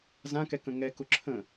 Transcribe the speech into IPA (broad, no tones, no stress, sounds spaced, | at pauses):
z ã k ɛ k ə̃ ŋ ɛ k ʊ ǁʰ ə̃